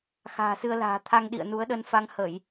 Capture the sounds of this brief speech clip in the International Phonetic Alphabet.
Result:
x a̤ː˨˩ s ɨ˧ ə̯ l a̤ː˨˩ t̪ʰ a˧ ŋ ɗ ḭ˧˨ ə̯ n u˨˦ ə̯ ɗ ə˧ n f a˧ ŋ h ə˧˩˨ j

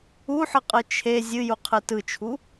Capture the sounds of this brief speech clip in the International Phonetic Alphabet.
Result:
u ħ ɯ qʼ ɯ t͡ʃʰ e zʲ ɨ j u qʰ ɯ t ɯ t͡ʃʰ u

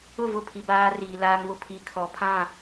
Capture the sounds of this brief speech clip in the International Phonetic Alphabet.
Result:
ʊ˦˨ v ʊ˦˨ pʰ i˨ b aː˦ r iː˨ l aː˦ ŋ β ʊ˦ pʰ i˨ kʰ ɔ˨ pʰ ã˦˨

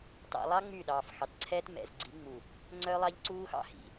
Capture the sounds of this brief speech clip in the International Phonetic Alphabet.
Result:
t ɑ̰˨ lˠ ɑ˦ ŋ͡m y˦˨ ɗ ɑː˨ f x ɑ˨ t ǀʰ ɛ˦ t m ɛ̰˨ z ɡ͡ǀ i˨˦ ŋ͡m u˨ | ŋ͡ǀ œ˦ lˠ ɑ˦ ʎ ǀ uː˦ x ɑ̰˦ h ḭ˨

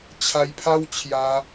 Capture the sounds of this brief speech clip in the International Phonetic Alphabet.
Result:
t͡ɕʰ a˧ j pʰ a˦ w t͡ɕʰ j a˧

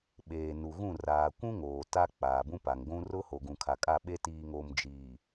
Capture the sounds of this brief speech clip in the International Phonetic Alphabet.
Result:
ɓ eː˨ n u˨ ɣ ũ˦˨ r aː˨ kʷ ũ˦ ŋ oː˨ t a˦ k͡p aː˨ b ũ˦ p a˨ ŋ ɡʷ ũ˦ r ʊ˦ h o˨ ɡ ũ˨ kʰ a˨ kʼ a˦˨ ɓ e˦ t iː˨ ŋ o˨ m d͡ʒ iː˨

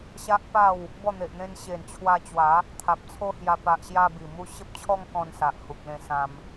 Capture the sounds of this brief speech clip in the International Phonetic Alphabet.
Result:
ɕ a˦ ʔ p a˥˧ w | b ɔ˥˧ n̪ e˨ ʔ n̪ ẽ˧ n ɕ e˨˩ n t͡ɕʰ w a˧ t͡ɕ w a˨˦ | t̪ʰ a˨ p̚ t͡sʰ o˦ h j a˧ p a˨ ʔ ɕ j a˧ b i˨˩ m u˦ ɕ ə˦ p̚ t͡ɕʰ ɔ˦ ŋ k ɔ̃˧ n s a˨ ʔ h u˨ k̚ l ẽ˧ s ã˧ m

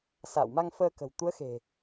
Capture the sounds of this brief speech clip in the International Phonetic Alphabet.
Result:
s a̰ː˧˨ w m a˧ ŋ f əː˧ k ə̤˨˩ w t̪ u˨˦ ə̯ x e̤˨˩

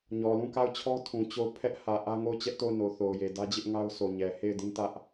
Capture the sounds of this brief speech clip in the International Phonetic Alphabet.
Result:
ɲ ɔ˨ l ũ˦˨ k a˦˨ ʊ̯ t͡ɕʰ ɔ˦ tʰ ũ˨ t͡ɕ o˦˨ ʊ̯ pʰ ɛ˦ ʔ h ä˨ ʔ ä˦ ŋ o˦˨ ʊ̯ t͡ɕ ɛ˦ ʔ t o˦˨ ʊ̯ n o˨ θ o˨ ʊ̯ j e˨ d ä˦ d͡ʑ ɪ˦ ʔ ŋ a˦ ʊ̯ s o˨ ɲ ɛ˨ h e˦˨ ɪ̯ d ĩ˦ t ä˦ ʔ

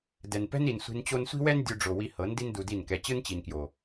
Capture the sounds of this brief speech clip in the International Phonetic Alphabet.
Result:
d ɛ˨ n p ɛ̤˦ n i˨ n sʷ i̤˧ n t͡ɕ o˦ n sʷ i̤˦ w ɛ˦ n dʲ u˧ ɖ͡ʐ o˨ w i˧ h ɤ˨˦ n d i˦ n d u˧ d i˦˨ n k ɛ˧ t͡ɕ ɯ˦ n t͡ɕ i˨ n k j o˨

